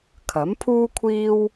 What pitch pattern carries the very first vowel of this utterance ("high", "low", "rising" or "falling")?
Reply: rising